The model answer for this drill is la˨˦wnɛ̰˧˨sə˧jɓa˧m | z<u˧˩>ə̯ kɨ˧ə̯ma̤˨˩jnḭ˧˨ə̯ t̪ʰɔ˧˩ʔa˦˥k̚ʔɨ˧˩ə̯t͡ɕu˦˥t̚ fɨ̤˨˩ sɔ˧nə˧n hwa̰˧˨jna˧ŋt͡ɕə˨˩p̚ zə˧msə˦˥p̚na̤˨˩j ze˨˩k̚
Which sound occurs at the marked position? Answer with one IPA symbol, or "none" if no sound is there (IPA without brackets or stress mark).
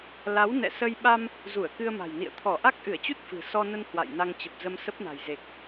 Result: u˧˩